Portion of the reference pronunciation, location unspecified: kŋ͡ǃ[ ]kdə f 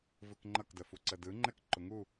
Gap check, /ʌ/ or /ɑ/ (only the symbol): ʌ